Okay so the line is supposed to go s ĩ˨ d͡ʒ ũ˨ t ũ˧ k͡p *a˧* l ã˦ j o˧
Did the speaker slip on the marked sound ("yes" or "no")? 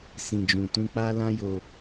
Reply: yes